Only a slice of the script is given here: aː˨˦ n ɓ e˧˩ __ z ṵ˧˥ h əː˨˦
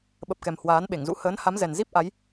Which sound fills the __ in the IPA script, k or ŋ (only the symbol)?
ŋ